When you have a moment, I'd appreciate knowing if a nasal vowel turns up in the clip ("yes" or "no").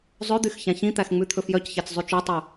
yes